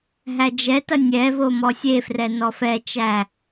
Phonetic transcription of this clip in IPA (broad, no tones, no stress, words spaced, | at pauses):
ɦæd͡ʒɛtɐ nʲɛvo mɔsʲefrɛ nɔfɛt͡ʃæ